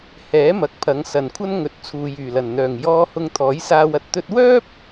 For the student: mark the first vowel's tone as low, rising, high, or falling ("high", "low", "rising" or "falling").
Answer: rising